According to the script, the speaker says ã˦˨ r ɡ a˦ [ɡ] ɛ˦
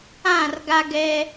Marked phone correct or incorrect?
correct